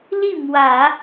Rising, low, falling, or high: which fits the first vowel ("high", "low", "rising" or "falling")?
falling